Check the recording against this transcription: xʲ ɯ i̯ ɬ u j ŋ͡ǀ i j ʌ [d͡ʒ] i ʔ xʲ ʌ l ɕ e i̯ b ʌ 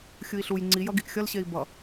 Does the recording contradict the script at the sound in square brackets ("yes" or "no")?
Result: yes